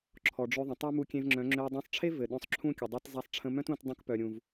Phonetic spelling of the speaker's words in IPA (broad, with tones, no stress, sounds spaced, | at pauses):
ǁʰ ɔ˨ ɖ͡ʐ ø˧ ðˤ ə̃˨ tˤ a˦ m u˧ kʲ ẽ˧ v ŋ͡ǁ œ̃˨˦ ŋ͡ǁ ø˧ u̯ dˤ œ̃˧ sˤ ʈ͡ʂʰ e˦ v ɘ˨ ɗ œ̃˧ sˤ ǁʰ ũ˦ kʲ ə˨ dˤ e˧ t zˤ a˧ sˤ ʈ͡ʂʰ ə̃˧ m œ̃˦ t ũ˧ t dˤ ũ˧ k p œ˨ ɾʲ ũ˨ v